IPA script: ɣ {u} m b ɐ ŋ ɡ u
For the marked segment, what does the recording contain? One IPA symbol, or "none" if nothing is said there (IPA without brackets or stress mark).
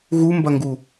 u